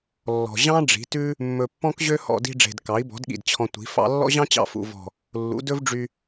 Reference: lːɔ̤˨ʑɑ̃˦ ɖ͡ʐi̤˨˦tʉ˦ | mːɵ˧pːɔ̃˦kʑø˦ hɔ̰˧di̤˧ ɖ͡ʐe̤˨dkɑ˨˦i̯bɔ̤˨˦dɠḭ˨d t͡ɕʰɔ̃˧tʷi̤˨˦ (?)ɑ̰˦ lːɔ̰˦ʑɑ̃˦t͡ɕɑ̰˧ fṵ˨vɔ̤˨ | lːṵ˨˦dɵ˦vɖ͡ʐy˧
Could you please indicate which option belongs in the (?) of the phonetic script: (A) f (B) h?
A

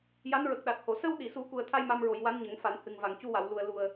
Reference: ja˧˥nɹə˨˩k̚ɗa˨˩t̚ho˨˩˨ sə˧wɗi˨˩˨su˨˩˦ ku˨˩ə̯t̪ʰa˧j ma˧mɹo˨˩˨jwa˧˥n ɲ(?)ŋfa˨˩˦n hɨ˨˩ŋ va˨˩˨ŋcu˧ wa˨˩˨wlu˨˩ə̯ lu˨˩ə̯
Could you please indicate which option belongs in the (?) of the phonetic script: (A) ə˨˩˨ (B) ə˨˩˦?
B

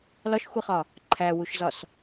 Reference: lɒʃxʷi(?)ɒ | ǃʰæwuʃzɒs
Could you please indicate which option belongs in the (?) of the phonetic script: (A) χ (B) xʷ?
A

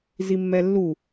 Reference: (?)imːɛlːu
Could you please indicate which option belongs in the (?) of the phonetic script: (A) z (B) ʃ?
A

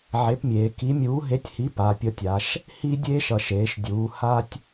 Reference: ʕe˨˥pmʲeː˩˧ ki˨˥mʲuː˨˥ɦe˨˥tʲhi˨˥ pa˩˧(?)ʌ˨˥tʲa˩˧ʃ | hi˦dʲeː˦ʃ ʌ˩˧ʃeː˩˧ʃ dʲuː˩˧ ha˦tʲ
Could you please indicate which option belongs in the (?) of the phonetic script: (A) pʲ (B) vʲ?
A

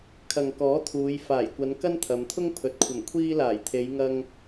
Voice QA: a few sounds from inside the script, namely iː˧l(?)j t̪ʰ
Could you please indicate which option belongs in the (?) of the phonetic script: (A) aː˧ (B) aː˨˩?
B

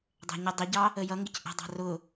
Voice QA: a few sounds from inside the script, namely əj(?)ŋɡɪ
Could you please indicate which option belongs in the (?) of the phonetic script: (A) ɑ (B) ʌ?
B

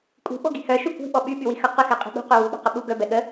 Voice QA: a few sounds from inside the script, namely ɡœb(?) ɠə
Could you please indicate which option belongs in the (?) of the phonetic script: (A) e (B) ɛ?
B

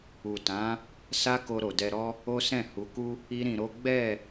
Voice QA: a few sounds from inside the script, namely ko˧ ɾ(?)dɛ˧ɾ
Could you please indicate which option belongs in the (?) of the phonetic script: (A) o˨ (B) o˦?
A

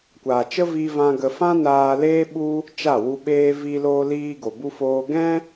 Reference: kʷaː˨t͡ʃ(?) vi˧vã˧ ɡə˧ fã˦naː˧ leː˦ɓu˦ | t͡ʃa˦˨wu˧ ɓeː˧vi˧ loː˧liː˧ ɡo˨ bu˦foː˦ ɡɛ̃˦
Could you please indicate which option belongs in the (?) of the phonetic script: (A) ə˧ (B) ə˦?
B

